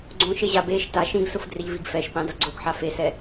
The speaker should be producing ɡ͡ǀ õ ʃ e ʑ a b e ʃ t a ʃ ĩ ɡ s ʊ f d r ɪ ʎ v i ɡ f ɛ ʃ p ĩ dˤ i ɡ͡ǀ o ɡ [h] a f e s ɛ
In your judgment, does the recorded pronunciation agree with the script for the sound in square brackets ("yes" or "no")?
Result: no